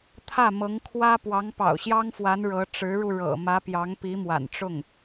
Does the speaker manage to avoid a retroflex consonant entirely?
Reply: no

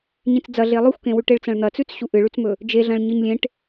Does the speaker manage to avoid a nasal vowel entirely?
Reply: no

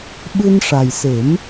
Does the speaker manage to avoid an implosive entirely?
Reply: no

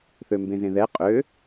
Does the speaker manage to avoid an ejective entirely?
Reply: no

